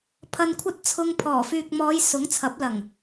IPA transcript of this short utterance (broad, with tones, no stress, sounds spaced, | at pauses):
pʰ ɐ˧ n kʷʰ ɐ˥ t̚ t͡sʰ ʊ˧ ŋ pʰ ɔː˨˩ f yː˨ k̚ m ɔː˨˧ j s ʊ˨˥ ŋ t͡sʰ ɐ˨˥ p̚ l ɐ˨˩ ŋ